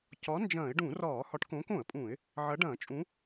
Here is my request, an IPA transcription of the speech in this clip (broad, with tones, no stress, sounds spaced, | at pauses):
c ɒ˨˥ n d͡ʒ ɐ̃ː˧˩˧ ɪ̯ ɖ ũ˧˩˧ r ɒː˧˩˧ h ɒ˨˥ ʈ k õː˨˥ k õ˧˩˧ ə̯ pʼ ũː˧˩˧ ɪ̯ | ʕ ɐ˨˥ ɖ ɐ̃ː˧˩˧ t͡ʃʼ ũ˨˥